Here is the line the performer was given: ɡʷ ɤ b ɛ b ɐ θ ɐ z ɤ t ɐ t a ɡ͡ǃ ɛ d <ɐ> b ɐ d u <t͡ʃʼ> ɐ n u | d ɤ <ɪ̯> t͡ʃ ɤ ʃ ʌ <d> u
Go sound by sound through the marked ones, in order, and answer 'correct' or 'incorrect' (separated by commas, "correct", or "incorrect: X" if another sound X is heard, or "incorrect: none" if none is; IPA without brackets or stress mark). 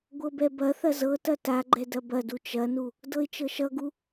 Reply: correct, incorrect: t͡ʃ, correct, incorrect: ɡ